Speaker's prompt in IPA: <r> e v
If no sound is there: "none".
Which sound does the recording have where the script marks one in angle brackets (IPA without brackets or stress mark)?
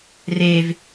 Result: r